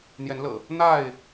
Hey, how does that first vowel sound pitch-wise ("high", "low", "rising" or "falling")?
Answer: rising